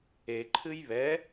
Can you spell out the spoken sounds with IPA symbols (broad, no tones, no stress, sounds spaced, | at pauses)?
e ǃʰ ɨ j β ɛ